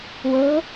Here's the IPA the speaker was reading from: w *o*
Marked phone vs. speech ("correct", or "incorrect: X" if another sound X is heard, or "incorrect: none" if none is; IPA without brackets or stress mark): incorrect: ɤ